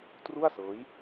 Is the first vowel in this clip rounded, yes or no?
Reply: yes